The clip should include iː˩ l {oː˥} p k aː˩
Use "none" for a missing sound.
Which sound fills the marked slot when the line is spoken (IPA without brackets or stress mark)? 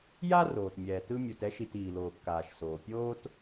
oː˩